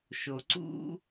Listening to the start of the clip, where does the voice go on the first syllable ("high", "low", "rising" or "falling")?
low